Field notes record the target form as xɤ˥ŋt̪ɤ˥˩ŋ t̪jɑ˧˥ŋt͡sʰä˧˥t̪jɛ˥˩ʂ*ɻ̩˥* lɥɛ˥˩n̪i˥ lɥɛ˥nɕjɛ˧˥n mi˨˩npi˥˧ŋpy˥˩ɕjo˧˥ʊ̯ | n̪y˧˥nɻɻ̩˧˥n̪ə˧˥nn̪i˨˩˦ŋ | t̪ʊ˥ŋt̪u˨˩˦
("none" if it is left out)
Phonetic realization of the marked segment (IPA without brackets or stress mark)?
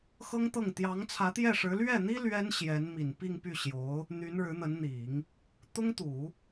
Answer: ɻ̩˧˥